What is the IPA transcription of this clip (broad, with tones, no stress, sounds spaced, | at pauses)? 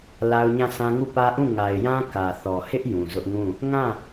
l a˦ ʊ̯ ɲ ã˦˨ s ã˦ ŋ u˦˨ p ä˦ ʔ ũ˦˨ ŋ a˨ ɪ̯ j ã˦ k ä˨ θ ɔ˨ h ɪ˦ ʔ j ũ˨ z ʊ˦ ʔ ŋ ũ˦˨ | ŋ ã˦˨